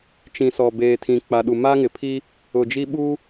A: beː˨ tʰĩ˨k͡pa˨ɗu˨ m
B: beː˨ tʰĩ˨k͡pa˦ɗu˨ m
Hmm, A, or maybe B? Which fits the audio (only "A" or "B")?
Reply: A